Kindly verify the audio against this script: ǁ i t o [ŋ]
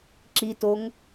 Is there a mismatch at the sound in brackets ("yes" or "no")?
no